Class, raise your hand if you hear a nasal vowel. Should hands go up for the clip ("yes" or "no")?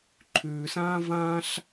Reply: yes